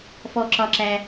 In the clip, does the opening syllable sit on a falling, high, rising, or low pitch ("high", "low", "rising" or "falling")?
high